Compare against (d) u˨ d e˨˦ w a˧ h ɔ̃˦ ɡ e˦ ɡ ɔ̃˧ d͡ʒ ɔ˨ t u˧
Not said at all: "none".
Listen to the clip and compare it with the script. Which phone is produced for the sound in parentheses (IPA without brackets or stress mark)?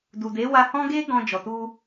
d